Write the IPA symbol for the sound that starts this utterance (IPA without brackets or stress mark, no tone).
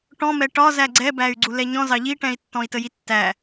ʈ